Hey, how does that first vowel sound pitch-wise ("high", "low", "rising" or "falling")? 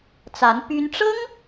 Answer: rising